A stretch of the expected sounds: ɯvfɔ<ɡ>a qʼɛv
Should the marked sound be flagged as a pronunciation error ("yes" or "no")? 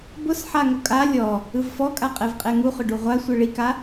yes